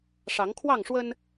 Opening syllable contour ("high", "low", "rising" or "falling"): rising